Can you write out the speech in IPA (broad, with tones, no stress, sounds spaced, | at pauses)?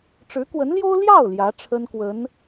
ʈ͡ʂ ɻ̩˧˥ k w ə˧˥ n l j o˥ ʊ̯ l j ɑ˥˩ ʊ̯ l j ä˧˥ ʈ͡ʂʰ ə˥ n k w ə˧˥ n